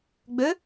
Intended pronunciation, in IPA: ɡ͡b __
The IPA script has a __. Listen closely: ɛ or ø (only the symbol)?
ø